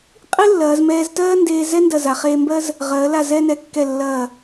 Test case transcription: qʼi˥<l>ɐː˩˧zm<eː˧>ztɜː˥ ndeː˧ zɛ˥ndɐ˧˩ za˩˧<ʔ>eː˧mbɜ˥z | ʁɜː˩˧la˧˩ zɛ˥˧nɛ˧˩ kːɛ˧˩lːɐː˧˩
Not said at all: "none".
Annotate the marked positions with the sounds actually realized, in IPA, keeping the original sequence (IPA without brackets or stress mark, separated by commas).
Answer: lː, ɛː˧, χ